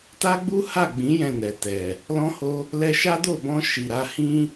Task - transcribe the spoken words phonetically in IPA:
t a˦ ɡ͡b u˦ h a˦˨ ɡ͡b ĩ˨˦ j ɛ̃˦˨ n ɛ˨ t ɛ˨ | l ɔ̃˦ h o˦ | l ɛ˧ ʃ a˦ d o˦˨ b ɔ̃˧ ʃ i˨ ɾ a˧ h ĩ˦

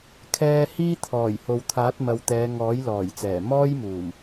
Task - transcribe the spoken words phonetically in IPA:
kʰ ɛː˧ h iː˥ t̪ʰ ɔː˨˩ j h o˨ w t̪ʰ aː˨˥ t̚ m ɐ˨ w t̪ ɛː˨˧ ŋ ɔː˨˥ j l ɔː˨˩ j t͡s ɛː˨˩ m ɔː˥ j m uː˨˩ m

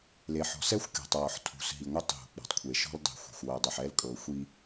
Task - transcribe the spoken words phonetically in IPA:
l e˨ ħ ɔ̤˨ s ɛ˦ xʷ kʲ ɔ̤˨ tˤ w ɔ˨ ħ tʰ ṳ˨ s ɦ i˨ ŋʷ ɛ˦ tˤ ɦ ṳ˨ k͡p ɔ̤˨ tˤ kʷʰ e˨ ʃ ɔ̤˦ l dˤ i̤˨ xʷ ɛ̤˨ xʷ w ɤ˨ dˤ e˨ ħ ɛ˦ l kʼ ɤ˨ xʷ i˦

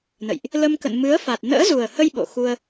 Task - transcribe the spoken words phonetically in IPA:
n ə̰˧˨ j ʔ | l ə˧ m k ə̰˧˨ n m ɨ˨˦ ə̯ f a˨˩ t̚ n ə̰ː˧˥ z u˨˩ ə̯ h ə˧ j ɓ o̰˧˨ x u˧ ə̯

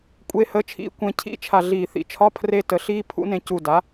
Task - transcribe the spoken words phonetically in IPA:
kʷʼ e˧˥˧ h ə˧˥˧ t͡ʃʰ ḭ˧˥˧ kʷ ẽ˧ cʰ ḭ˦˥ t͡ʃʰ a˧˩ ɮ iː˧˩ θ ḭ˩˥ t͡ʃʰ ɒ˧˥˧ pʰ r e˧ t ə˩˥ ɬ iː˦˥ pʰ ṵ˦˥ n ẽ˧ c u˧˩ d a˩˥

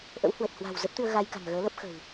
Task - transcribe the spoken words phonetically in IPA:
ʔ ə̰˧˥ w h w ə˨˩ t̚ h w a̤˨˩ w z ə˦˥ p̚ t̪ ɨ˧ ə̯ ɣ a˧ j k a̤˨˩ ŋ ɣ əː˨˦ l ə˦˥ p̚ x ə̤˨˩ w

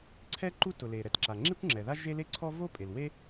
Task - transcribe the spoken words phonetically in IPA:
ǀʰ ɛ˥ ǃ u˥ t ʊ˩ l e˩ ɾ ɛ˩ t ǁ a˩ ŋ͡ǁ i˥ kʷ ŋ͡ǁ ɛ˩ ð a˥ ʒ e˥ l e˥ ǀʰ ɔ˥ v o˥ pʼ e˩ l w e˥

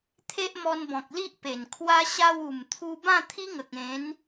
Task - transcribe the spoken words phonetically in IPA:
t̪ʰ e˦ ʔ m ɔ˧ n b ɔ̃˨ k̚ l i˦ ʔ p e˨˩ n kʰ w a˦ ɕ a˧ w u˨˩ m t̪ʰ u˧ b ã˥˧ t̪ʰ i˦ ŋ ə˨ k̚ ẽ˨˦ n

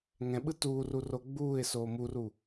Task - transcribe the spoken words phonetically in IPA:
ŋ ɛ̃ ɓ ɯ t uː r u r o ɡ͡b uː ɪ̯ s oː m u r u

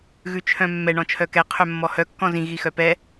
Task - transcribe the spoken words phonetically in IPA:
ɣ ʉ t͡ʃʰ œ̃ mː ɛ ɳ ɔ̃ t͡ʃʰ œ k ɛ qʰ œ mː ɔ h œ kː ɔ̃ z ĩ ɣ i x œ p ɛ

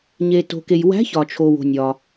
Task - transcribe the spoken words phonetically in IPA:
ɲ e˩ t o̤˩ k e˩ j w æ̤˧˥ ç ɒ˩ t͡ʃʰ o˩ w o̤˩ nʲ ɒ˩

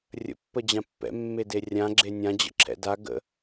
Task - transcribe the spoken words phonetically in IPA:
rʲ ə̰ pː ə d͡ʑ ã pː ɛ̰ mː e d e rʲ ã ɡ͡ǁ e nʲ ã d͡ʑ ə̰ ǁʰ ɛ̰ d a ɡ ə̰

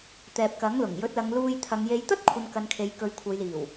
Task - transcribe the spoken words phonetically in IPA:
t̪ ɛː˨ p̚ k ɐ˨˥ ŋ l ʊ˨˩ ŋ j ɵ˨˥ t̚ l ɐ˨˧ ŋ l uː˧ j t̪ʰ ɐ˨˧ ŋ j e˨˧ j t̪ ɐ˥ t̚ kʷʰ ɐ˨ n k ɐ˨ n kʰ e˨ j k ɵ˨˧ ɥ kʷʰ ɐ˨˧ j l iː˨˩ w

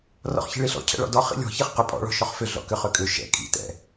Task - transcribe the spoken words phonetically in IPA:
r ɔ̰ χ ç i̤ ɭ i ɬ ɔ̰ cʰ ɛ̰ ɭ ɔ̰ d ɔ χ ḭ lʲ ɔ̤ ç i χ q ʏ pʼ ɔ̰ ɭ ɔ̤ ʃ ɔ χ f ʏ ɮ ɔ̰ k ʏ χ ʏ kʼ ʏ ʃ ɛ̰ kʼ ḭ t ɛ̰

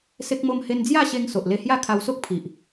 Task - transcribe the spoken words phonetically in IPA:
s e˦ k̚ m o˦ m h e˦ n d͡z j a˥˧ ɕ e˧ ŋ s o˨ ʔ l e˧ h j a˥˧ kʰ a˧ w s o˦ k̚ pʰ i˨ ʔ

